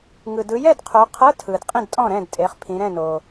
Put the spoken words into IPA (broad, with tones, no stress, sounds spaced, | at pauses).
ŋ ɯ˨ d ɯ˨˦ j ɛ˥˨ d qʰ o˨˦ qʰ ɤ˧˥˧ tʰ ɯ˨ d qʼ ĩ˥˨ d tʼ ɔ̃˥˨ ɾ ɛ̃˥˨ d tʼ e˨˦ χ pʰ ĩ˨˦ ɾ ɛ̃˥˨ n o˨